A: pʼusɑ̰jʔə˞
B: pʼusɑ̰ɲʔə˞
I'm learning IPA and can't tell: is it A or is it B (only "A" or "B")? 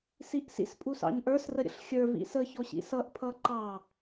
B